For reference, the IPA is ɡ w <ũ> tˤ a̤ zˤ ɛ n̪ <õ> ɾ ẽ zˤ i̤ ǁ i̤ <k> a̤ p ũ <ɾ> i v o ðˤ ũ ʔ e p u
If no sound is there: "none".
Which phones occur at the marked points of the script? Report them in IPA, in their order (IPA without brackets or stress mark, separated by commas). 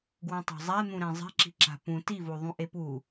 ũ, ũ, ǁ, t